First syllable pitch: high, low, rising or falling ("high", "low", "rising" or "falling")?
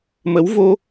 rising